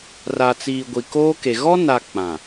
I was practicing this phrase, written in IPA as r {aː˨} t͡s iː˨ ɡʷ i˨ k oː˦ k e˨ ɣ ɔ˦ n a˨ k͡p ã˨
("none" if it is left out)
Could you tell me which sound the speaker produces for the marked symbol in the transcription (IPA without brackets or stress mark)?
a˨